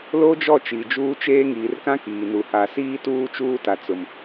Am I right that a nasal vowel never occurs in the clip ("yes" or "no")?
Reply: no